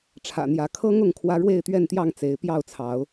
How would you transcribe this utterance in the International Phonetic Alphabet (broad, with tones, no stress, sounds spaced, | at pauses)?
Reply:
ʈ͡ʂʰ ä̰˨˩ n̪ j ä˨˦ kʰ ɤ˦ ŋ ʊ˥˨ ŋ kʰ w ä˦ ɻ w e˥˨ ɪ̯ t̪ ɥ ɛ˥˨ n t̪ j ɑ˥˨ ŋ t͡s e˨˦ ɪ̯ p j ɑ˥˨ ʊ̯ t͡sʰ ɑ˨˦ ʊ̯